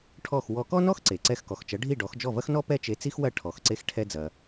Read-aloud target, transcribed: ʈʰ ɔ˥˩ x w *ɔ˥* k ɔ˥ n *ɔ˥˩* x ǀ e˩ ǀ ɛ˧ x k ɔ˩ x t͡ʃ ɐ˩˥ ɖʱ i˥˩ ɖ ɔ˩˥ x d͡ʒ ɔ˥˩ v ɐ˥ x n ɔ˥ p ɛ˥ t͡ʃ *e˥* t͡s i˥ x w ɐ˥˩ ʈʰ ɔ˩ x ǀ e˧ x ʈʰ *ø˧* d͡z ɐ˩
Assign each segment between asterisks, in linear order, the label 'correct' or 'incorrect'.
incorrect: ɔ˧, incorrect: ɔ˥, incorrect: e˧, incorrect: ɛ˧

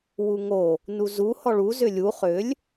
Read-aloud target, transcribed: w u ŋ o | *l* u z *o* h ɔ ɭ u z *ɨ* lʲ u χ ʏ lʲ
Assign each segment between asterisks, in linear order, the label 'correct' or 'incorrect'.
incorrect: n, incorrect: u, incorrect: ʏ

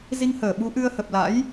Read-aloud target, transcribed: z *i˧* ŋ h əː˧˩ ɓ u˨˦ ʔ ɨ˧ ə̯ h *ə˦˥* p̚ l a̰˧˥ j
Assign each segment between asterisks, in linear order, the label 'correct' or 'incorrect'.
correct, incorrect: ə˨˩

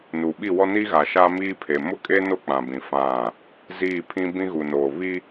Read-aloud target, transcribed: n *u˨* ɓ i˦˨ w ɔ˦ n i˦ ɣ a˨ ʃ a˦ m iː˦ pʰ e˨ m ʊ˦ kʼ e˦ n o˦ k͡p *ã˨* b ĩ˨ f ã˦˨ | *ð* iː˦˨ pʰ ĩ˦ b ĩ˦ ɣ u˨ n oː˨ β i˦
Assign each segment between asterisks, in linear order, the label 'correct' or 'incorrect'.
correct, correct, incorrect: z

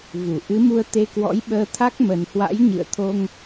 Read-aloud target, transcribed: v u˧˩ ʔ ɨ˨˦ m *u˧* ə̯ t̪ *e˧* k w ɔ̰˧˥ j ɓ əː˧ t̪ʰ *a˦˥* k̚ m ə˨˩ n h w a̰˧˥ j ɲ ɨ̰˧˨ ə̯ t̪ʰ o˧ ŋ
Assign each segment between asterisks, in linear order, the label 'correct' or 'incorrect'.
correct, correct, correct

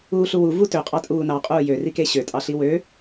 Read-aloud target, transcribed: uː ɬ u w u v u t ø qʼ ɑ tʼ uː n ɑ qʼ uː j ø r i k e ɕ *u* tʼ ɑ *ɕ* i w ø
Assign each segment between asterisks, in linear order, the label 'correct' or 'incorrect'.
incorrect: ø, incorrect: ɬ

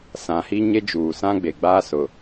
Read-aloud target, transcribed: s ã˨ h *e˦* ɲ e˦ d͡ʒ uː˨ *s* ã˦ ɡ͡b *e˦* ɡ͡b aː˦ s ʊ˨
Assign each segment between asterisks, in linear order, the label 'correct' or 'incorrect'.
incorrect: i˦, correct, incorrect: e˨

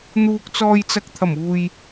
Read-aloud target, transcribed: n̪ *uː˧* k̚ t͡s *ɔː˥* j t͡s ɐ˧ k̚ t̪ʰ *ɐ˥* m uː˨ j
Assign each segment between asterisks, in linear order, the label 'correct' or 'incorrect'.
correct, incorrect: ɔː˧, incorrect: ɐ˨˩

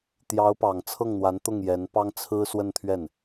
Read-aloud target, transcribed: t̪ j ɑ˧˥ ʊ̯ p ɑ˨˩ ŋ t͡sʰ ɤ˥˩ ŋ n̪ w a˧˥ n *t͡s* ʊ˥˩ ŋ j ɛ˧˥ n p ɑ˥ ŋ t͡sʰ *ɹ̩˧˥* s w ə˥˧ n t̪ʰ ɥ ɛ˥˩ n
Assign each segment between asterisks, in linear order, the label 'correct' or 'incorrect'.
incorrect: t̪, incorrect: ɹ̩˥

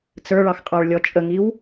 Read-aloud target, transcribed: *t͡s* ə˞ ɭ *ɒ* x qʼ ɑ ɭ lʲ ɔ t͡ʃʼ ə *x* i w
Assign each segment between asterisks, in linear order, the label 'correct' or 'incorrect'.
correct, incorrect: ɑ, incorrect: ŋ

